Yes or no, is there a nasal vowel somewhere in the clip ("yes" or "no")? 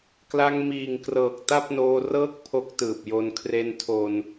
no